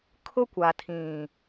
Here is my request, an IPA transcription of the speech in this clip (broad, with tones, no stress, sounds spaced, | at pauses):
kʰ ʊ˦ kʷ a˨ tʰ ĩ˨